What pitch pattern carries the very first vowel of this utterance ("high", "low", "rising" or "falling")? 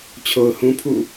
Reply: low